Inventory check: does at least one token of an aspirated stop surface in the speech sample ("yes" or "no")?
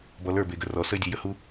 no